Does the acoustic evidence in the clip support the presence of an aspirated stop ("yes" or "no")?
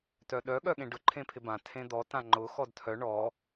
yes